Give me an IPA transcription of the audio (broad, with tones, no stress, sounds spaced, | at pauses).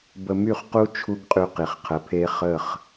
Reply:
b ə˧ m y˦˨ χ q u˦ t͡ʃʰ u˦ ɡ qʼ y˧ q i˨ χ qʰ ə˨˦ pʰ e˦ χ ə˦˨ χ